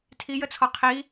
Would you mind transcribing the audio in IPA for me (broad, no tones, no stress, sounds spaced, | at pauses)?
tʰ i j ə t͡sʰ ɔ qʰ i